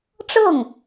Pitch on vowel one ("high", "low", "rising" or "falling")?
falling